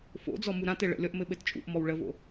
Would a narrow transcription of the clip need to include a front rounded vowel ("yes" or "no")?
no